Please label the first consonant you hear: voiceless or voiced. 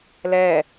voiced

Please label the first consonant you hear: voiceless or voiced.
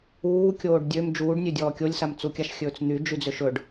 voiceless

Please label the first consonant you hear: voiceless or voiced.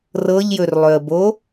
voiced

